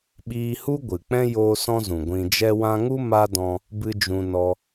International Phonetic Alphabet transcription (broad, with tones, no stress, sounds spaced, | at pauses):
ɓ iː˧ h u˦ ɡʷ ɨ˨ k͡p ɛ̃˦ j oː˦ s ɔ̃˦ z ũ˨ ɡʷ ĩ˧ d͡ʒ ɛ˧ w ã˧ ŋ u˦ m a˦ d ɔ̃˧ | b ɨ˦ d͡ʒ ũ˧ n ɔ˦